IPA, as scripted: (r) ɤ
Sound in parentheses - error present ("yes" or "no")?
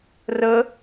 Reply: no